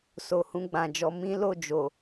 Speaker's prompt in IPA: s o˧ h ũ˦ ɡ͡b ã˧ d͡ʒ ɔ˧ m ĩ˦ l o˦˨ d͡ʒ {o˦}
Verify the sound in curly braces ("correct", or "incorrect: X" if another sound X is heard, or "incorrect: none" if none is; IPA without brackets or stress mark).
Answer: incorrect: o˨